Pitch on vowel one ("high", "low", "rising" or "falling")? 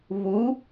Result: rising